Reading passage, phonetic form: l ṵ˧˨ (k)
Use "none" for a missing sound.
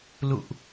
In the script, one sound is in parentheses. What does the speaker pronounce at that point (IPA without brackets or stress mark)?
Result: ʔ